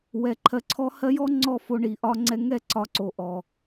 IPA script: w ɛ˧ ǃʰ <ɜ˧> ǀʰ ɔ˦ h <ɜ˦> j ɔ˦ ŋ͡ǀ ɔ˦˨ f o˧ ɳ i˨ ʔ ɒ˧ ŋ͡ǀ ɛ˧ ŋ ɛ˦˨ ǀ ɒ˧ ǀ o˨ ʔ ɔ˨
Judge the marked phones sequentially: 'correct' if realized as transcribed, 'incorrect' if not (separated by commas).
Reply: correct, correct